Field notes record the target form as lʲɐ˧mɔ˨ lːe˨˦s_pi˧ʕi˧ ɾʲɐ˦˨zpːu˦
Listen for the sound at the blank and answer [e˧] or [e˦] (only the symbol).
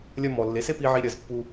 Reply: e˦